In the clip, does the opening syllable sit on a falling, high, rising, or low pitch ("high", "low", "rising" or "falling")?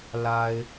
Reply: low